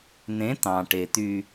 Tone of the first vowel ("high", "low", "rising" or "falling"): rising